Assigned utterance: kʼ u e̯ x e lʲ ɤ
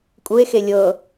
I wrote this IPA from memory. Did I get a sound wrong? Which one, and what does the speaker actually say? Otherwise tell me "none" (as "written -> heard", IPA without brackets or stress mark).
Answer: none